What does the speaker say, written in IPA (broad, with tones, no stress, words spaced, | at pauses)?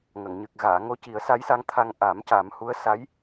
ŋə˨˩˨ŋɲɨ˨˩k̚ ɣaː˨˩˨ ŋo˧˥ci˨˩˦ə̯sa˧˥jsa˧˥ŋ t̪ʰa˧ŋ ʔa˨˩˦m ca˨˩˦mhu˧˥ə̯ sa˧˥j